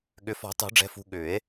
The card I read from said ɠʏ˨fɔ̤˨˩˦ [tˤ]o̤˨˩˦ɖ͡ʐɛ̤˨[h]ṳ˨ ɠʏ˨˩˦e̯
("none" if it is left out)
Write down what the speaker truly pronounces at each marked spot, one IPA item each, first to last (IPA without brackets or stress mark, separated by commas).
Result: tˤ, f